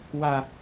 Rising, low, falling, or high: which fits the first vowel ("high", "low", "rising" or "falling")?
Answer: high